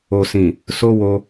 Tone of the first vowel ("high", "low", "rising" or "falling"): low